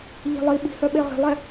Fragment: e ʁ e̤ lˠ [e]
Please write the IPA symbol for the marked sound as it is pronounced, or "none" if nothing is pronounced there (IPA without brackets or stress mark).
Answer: ɛ